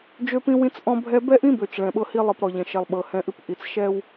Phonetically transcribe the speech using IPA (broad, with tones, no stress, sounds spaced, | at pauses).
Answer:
d͡ʒ ø˦ p ĩ˦ w ĩ˦ t͡s ʔ ɔ̃˦ bʱ ɛ˦ b ɛ˦ ʔ ĩ˦ b ø˨ t͡ʃ ɭ ɛ̃˨ ɓ ɤ˦ h i˦ lˠ ɨ˨ p ɾ ɔ˨ ʎ ɛ̃˨ ʃ ɛ˨ lˠ ɓ ɤ˨ h ɛ̃˦ ʔ ɨ˦ p ʔ i˨ t͡s ʃ ɛ˦ w